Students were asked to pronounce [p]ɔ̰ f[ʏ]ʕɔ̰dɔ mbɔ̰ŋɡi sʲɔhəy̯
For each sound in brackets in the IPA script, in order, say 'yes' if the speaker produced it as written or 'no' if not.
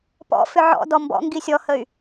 yes, yes

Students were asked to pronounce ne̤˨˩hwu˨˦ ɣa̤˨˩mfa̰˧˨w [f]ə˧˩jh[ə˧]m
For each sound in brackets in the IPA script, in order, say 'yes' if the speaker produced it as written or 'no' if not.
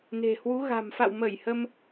no, yes

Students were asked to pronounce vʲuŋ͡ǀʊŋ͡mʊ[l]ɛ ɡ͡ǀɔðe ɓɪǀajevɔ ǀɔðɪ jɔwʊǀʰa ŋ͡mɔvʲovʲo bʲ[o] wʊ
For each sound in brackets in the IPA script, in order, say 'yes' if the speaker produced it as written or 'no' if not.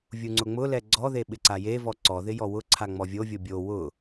yes, yes

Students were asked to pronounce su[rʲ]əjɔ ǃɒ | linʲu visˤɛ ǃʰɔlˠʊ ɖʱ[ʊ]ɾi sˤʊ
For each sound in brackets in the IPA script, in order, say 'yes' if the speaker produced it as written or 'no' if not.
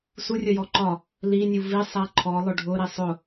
yes, yes

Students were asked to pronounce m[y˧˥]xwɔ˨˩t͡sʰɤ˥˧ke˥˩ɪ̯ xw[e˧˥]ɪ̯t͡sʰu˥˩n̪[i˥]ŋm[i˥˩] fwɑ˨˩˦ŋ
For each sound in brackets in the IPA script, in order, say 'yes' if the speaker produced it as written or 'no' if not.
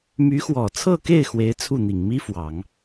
yes, yes, no, no

